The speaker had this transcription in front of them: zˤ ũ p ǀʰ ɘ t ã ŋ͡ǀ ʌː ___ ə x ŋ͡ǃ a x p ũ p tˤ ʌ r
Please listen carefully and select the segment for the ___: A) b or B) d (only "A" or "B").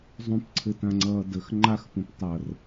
B